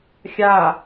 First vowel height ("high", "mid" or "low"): low